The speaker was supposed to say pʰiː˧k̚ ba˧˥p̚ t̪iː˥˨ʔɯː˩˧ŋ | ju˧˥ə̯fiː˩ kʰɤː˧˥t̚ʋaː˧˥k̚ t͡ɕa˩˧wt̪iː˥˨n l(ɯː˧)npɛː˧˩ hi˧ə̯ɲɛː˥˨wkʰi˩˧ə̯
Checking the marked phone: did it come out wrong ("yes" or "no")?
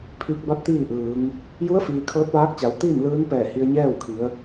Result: yes